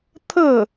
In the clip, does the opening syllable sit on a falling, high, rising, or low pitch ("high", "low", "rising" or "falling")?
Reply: falling